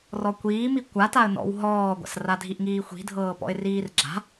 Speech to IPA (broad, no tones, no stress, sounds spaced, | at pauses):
r ɔ kʷ iː m i kʷ a t a ə̯ n ɔ̰ w ɦ ɔː ɡʷ a̰ s r a dʱ i ʔ ŋ iː xʷ i̤ dʱ ɤː p ɔ̰ ɪ̯ r iː r ɡ͡ǁ a̤